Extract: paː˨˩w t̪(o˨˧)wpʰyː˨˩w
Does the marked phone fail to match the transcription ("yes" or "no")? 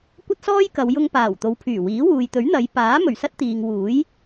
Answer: no